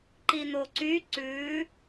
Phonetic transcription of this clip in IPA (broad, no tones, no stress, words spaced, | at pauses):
ǃin̪oǀy ǀʉ